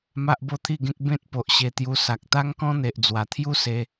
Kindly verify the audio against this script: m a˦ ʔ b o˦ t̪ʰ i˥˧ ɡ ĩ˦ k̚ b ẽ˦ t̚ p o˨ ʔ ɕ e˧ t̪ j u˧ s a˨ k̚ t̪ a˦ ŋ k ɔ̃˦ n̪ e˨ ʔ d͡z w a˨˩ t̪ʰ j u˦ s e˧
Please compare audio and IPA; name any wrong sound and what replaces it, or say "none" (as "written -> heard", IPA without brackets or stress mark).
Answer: ĩ˦ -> ẽ˦